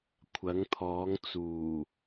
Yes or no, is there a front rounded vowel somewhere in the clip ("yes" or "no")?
no